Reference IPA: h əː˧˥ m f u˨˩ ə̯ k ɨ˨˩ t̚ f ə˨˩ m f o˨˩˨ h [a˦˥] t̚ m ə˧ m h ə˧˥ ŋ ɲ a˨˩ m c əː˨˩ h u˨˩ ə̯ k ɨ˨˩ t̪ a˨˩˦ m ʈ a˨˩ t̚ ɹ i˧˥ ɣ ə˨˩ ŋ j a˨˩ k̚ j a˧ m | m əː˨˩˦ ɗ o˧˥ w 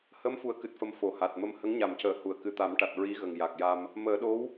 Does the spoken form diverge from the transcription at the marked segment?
yes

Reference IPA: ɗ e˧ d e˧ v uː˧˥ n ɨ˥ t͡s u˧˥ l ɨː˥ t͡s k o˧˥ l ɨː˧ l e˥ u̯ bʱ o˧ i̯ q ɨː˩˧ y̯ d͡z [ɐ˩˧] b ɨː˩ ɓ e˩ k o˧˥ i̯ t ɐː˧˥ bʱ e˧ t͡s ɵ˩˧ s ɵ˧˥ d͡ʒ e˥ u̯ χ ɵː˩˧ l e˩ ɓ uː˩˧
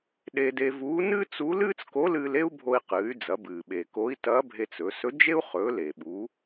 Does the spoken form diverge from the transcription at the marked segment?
no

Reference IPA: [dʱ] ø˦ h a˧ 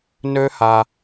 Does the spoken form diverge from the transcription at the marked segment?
yes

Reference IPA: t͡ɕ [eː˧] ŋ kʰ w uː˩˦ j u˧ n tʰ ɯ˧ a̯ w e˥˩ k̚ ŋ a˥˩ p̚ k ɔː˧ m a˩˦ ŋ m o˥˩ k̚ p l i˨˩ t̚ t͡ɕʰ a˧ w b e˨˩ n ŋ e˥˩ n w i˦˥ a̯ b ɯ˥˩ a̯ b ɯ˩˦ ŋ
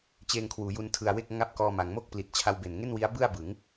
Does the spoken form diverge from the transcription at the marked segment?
no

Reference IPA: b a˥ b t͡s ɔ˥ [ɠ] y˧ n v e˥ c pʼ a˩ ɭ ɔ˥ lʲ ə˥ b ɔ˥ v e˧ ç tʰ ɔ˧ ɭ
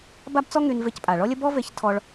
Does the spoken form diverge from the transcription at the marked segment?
yes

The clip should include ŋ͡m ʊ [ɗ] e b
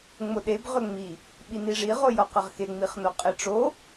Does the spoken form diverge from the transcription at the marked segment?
no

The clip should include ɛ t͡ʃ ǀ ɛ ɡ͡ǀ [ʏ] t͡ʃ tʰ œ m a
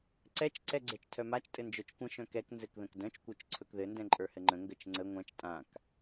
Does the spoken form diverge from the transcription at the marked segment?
yes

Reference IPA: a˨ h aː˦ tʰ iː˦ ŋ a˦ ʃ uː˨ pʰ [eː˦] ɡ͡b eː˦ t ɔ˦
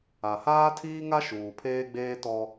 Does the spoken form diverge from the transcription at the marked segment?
no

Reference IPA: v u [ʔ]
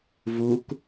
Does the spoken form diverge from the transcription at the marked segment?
yes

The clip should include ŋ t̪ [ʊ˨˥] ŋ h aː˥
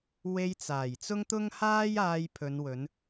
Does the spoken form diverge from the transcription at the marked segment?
yes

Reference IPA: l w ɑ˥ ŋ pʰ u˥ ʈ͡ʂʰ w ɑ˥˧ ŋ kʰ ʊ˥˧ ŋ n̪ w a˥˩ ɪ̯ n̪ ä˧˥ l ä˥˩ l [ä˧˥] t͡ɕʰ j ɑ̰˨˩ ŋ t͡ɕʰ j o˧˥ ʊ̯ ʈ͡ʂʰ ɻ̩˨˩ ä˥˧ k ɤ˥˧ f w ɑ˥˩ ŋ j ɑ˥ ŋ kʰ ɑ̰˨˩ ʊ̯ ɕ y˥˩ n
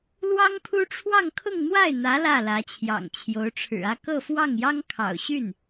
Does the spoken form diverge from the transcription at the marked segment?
no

